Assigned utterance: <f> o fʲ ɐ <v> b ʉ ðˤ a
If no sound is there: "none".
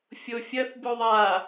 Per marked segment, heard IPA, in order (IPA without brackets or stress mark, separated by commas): fʲ, θ